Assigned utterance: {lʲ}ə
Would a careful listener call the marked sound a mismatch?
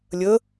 no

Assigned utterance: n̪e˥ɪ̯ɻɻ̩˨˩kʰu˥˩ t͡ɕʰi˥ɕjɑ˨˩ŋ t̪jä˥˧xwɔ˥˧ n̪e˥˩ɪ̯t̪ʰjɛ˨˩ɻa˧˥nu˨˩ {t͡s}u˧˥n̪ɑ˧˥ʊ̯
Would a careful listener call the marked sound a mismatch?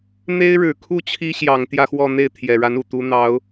yes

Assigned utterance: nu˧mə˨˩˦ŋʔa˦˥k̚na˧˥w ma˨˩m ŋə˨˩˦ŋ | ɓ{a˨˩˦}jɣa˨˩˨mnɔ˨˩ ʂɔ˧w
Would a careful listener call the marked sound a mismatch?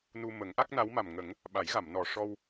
no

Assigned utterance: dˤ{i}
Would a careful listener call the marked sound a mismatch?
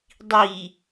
no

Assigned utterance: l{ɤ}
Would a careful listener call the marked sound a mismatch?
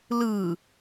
yes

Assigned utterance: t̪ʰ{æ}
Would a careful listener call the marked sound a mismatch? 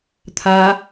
yes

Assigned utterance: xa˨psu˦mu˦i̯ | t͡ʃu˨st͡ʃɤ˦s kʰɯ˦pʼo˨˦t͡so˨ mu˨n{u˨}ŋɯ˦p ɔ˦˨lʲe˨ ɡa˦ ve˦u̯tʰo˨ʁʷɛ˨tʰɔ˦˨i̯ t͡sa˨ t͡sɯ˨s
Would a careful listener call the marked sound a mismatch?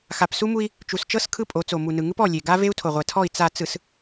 yes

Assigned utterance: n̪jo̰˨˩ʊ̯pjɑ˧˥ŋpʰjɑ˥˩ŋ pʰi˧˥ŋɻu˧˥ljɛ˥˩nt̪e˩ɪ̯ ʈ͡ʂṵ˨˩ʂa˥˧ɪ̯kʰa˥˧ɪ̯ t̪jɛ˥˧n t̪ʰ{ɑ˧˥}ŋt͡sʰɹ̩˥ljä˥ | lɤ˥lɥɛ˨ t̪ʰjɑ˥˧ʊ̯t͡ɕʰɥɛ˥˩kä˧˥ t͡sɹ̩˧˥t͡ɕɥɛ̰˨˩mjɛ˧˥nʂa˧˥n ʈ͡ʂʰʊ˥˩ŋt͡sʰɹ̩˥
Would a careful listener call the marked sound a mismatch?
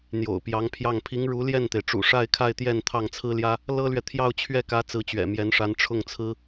yes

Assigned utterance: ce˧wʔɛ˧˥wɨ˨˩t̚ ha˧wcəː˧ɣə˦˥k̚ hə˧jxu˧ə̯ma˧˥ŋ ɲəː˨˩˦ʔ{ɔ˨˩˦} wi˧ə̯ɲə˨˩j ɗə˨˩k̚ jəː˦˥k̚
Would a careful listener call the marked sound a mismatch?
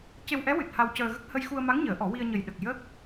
no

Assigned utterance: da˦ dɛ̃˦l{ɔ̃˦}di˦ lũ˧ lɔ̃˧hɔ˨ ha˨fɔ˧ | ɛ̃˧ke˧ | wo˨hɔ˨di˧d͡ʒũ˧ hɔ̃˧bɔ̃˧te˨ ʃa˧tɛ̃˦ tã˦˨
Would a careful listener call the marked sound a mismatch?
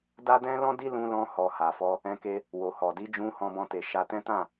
no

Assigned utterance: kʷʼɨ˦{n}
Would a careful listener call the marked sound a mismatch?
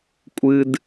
yes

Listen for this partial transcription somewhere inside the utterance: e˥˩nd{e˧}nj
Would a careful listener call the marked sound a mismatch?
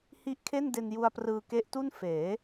no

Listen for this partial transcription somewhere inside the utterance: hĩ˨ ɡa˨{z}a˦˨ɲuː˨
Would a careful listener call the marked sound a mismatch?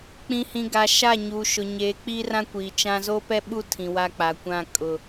yes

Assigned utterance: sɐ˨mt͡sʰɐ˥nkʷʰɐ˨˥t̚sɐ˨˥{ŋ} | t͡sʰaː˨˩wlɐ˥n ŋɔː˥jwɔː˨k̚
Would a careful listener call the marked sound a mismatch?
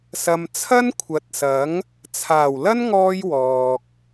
no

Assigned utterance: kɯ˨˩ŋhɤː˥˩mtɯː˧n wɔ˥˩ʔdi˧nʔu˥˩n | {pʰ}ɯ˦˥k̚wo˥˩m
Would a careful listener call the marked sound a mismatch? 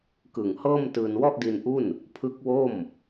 no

